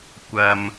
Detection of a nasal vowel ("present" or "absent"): absent